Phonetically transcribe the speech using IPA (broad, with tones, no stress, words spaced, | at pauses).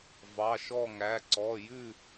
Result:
vɑ˧˥˧ʃɔ˥˧ŋæ˧˥˧ǀɔ˧˥˧ jʉ˥˧